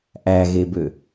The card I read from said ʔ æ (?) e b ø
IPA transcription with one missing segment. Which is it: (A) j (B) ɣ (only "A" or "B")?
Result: B